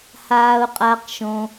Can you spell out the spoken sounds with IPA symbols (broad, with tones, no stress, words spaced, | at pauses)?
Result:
haː˨ʊ̯qʼa˨qʃõ˨